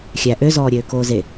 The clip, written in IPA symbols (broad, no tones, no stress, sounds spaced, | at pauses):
xʲ æ ʔ ø z ɔː ɾʲ øː k oː z e